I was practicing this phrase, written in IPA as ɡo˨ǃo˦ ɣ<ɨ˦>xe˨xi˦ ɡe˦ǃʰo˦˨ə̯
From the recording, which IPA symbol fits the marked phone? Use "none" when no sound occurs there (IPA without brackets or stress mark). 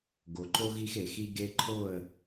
i˦